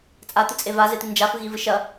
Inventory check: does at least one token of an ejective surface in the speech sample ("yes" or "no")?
yes